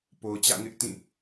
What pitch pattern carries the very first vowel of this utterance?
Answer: low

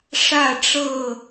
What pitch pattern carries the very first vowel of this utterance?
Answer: falling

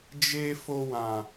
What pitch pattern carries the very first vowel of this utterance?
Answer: low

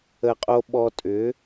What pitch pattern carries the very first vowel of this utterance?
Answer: low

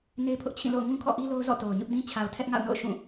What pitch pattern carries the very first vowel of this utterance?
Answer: high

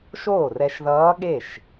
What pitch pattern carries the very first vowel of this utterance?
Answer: falling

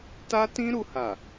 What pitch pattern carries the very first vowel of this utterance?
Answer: high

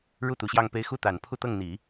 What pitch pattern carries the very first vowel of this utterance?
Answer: falling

